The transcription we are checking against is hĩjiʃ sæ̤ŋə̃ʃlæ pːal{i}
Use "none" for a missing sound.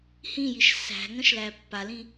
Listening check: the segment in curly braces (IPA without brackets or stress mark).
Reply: ĩ